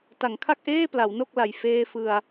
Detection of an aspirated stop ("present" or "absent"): present